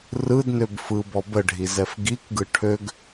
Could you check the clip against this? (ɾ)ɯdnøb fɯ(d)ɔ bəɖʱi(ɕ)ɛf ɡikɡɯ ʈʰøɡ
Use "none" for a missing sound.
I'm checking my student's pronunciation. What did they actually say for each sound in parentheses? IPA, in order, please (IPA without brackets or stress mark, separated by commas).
r, b, z